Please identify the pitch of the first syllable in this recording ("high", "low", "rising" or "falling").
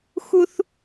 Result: high